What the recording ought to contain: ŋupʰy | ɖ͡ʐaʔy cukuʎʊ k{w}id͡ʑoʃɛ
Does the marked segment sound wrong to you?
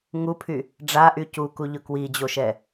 no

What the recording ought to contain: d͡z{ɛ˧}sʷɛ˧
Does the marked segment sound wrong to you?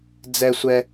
no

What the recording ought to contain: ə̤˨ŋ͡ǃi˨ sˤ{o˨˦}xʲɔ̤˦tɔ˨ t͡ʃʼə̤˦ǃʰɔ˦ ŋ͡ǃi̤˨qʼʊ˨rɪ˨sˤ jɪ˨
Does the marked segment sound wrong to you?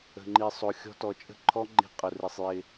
yes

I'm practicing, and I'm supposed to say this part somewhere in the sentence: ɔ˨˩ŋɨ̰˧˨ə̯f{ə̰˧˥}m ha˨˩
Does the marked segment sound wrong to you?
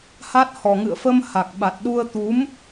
yes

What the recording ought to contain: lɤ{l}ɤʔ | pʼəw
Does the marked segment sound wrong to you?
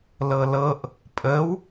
no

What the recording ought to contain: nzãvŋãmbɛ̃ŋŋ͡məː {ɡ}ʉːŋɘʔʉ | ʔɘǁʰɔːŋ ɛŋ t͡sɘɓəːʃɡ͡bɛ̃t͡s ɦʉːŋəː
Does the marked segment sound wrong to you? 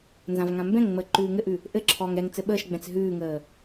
yes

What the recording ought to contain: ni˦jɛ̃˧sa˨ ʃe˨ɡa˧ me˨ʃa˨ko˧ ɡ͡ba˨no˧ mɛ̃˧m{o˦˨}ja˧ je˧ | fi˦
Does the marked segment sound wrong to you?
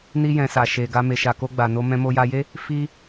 yes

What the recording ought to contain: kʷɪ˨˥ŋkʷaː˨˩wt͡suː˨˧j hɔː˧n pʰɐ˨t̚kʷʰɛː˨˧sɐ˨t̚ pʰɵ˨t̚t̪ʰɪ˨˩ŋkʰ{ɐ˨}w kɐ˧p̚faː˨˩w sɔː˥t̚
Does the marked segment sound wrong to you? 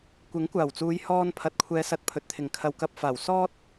no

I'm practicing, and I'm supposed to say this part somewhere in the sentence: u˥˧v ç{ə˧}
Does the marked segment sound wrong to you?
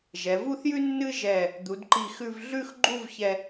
yes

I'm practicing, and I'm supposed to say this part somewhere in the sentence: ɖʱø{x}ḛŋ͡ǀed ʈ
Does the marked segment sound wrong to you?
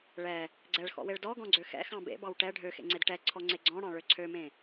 no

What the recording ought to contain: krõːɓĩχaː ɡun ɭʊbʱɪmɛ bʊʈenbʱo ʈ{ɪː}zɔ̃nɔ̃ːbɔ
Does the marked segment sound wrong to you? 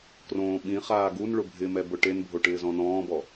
no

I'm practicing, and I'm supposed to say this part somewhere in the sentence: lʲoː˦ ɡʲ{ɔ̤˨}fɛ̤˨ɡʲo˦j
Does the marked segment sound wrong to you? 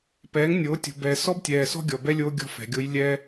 yes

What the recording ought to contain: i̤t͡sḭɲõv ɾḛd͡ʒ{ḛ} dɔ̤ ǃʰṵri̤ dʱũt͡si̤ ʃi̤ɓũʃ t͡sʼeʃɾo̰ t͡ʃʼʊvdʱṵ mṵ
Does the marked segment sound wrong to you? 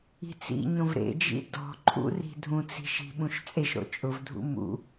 yes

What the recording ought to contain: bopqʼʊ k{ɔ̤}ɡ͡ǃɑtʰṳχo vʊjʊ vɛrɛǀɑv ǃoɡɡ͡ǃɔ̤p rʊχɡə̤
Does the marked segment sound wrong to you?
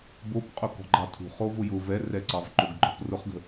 no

